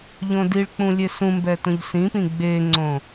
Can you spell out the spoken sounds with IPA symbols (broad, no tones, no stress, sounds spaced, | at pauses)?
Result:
ʎ õ d i ɭ k͡p ũ lʲ e s ũ m b ɛ t õ ʎ s ĩ p ĩ ɡ͡b e ŋ͡ǀ õ